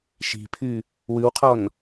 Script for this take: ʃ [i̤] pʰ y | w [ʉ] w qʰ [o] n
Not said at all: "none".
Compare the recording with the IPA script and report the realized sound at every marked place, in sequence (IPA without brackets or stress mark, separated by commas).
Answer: i̤, ʉ, ɔ